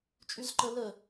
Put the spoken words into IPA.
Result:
t͡ʃʼ y z ǃ ə l ə

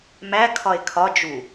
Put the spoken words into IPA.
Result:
m æ kʰ ɒ e̯ kʰ ɒ d͡ʒ u

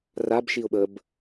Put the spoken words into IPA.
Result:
r a b ʃ i ʊ̯ ɓ ə b

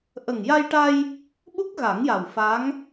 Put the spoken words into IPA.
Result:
ʔ ə˨˩ ŋ j a˧ j ʈ a˧ j | ɓ u˦˥ k̚ ɣ a˨˩˦ ŋ j a˨˩ w f a˧˥ ŋ

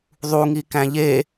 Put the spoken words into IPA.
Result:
ðˤ u ŋ i k æ̃ ʎ e

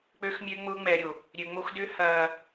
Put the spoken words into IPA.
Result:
k͡p ø˦ x mʲ ø˦ ŋ͡m ʊː˦ ŋ͡m ɛ˨ ɾʲ o˨ | ɾʲ ø˨ ŋ͡m o˦ x d ʏ˦ h ɐː˨

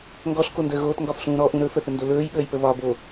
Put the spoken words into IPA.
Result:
ŋ ɡ ɔ ɬ k o n d əː ɣ oː t ŋ ɡ ɒ f ɬ ũː ɾ ɔ ʔ ũ ɾ ɵ f ə θ ə n d o l ɵː j ɓ əː j p ə β ɒ b o

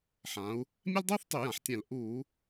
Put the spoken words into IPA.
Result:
ħ ã˩˧ u̯ | mʲ ɛ˥ l dˤ uː˥ θ tˤ y˧˩˧ j ã˩˧ ħ tʲ ɛ̃˧˩˧ l ʔ uː˧˩˧

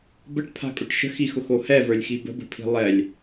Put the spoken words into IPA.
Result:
b ə ʈ pʰ a̤ kʼ ʊ ʈ ʃ ə̤ x i x ʊ x o h ɛ v ə˞ lʲ x i b ə̤ b ə̤ pʰ i̤ lˠ ɛ lʲ

